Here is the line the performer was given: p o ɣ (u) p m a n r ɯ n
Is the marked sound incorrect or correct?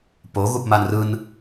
correct